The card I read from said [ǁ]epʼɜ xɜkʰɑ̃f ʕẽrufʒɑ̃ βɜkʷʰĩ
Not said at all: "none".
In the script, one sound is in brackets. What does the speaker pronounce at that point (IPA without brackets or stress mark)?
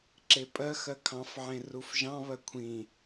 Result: ǁ